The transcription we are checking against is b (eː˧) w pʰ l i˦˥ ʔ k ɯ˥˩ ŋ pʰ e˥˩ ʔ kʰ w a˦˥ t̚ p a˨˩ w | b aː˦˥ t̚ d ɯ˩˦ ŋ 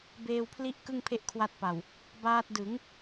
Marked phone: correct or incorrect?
correct